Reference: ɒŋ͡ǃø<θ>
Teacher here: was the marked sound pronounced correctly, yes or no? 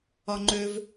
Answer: no